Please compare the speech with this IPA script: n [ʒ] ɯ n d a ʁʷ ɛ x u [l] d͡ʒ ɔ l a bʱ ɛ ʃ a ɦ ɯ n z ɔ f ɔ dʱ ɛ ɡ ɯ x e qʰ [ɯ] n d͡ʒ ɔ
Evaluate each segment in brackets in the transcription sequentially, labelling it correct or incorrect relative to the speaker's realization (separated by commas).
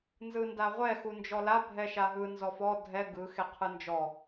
incorrect, incorrect, correct